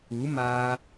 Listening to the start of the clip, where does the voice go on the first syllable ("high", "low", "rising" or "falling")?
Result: rising